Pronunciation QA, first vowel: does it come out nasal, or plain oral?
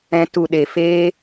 nasal